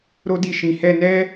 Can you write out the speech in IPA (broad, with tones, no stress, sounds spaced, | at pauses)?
ɾ o˦ d i˧ ʃ ĩ˨ h ɛ˧ n ɛ˦